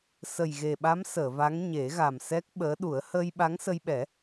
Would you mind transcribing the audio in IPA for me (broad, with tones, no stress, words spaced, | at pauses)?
sə˨˩jɣe˨˩ɓa˧˥m səː˨˩˨va˧˥ŋ ɲe˨˩˦ɣa˨˩m sɛ˦˥k̚ɓəː˧˥ ɗu˨˩˦ə̯ həː˧jɓa˧˥ŋsə˧jɓɛ˨˩˦